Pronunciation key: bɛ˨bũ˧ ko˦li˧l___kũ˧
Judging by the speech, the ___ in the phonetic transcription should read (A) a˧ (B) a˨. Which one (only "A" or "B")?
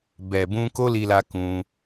A